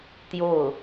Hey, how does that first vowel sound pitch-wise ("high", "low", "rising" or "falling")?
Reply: falling